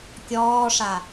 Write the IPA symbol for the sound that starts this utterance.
kʲ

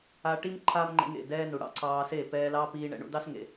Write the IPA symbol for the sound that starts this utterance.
a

